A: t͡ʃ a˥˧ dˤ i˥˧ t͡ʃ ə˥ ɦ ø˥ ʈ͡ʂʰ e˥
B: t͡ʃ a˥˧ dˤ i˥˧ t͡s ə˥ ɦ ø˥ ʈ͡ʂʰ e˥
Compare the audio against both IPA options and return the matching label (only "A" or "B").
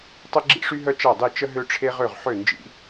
A